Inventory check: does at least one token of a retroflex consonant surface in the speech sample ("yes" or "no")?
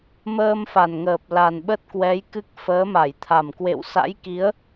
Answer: no